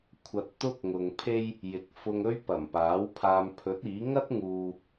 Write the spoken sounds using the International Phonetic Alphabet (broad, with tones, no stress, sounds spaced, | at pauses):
kʷʰ ɐ˧ t̚ t̪ ʊ˥ k̚ ŋ ʊ˨ ŋ pʰ e˥ j | j ɪ˨ k̚ f ʊ˧ ŋ ɵ˥ ɥ p ɐ˨˩ m p aː˨˥ w pʰ aː˧ m pʰ ɵ˨˥ t̚ iː˨˥ ŋ ɐ˥ t̚ ŋ uː˨